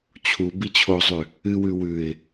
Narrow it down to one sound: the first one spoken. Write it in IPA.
t͡ɕʰ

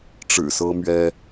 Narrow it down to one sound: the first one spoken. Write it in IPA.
ʈ͡ʂ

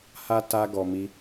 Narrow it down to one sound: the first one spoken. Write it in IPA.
h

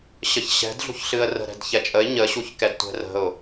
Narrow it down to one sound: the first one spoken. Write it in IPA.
ɕ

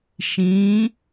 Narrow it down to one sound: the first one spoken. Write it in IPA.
ʃ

